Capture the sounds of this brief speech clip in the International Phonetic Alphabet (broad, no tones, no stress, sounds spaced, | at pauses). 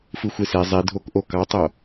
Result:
f ɯ xʷ e s e zˤ i dʱ o k ʔ o k ɑ tˤ o